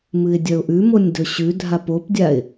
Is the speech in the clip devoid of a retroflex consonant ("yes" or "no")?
yes